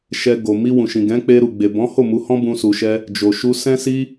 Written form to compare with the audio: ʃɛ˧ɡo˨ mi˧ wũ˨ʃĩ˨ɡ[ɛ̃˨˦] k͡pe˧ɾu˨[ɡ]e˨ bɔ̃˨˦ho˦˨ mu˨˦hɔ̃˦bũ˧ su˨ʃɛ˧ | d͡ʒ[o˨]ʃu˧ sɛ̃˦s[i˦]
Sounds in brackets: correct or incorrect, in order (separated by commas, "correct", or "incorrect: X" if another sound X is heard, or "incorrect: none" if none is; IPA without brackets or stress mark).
correct, incorrect: ɡ͡b, correct, correct